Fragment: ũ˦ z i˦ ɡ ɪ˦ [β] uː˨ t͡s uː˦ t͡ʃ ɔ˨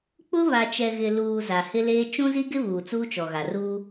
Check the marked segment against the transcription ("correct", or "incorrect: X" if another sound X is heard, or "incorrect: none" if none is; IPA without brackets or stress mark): correct